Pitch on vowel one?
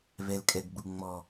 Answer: low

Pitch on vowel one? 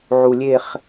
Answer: low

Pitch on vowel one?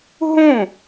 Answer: falling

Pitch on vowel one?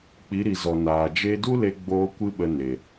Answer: rising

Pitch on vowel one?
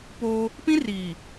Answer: high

